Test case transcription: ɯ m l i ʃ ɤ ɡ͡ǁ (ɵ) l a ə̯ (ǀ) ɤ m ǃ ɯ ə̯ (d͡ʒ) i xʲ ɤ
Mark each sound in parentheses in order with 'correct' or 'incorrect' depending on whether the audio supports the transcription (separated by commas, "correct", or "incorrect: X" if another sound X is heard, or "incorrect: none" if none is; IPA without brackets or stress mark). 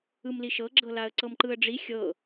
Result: incorrect: ɤ, correct, incorrect: ɖ͡ʐ